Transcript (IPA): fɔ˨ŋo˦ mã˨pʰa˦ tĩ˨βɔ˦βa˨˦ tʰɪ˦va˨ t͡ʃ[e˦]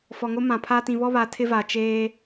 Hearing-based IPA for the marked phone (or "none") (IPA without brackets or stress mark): eː˦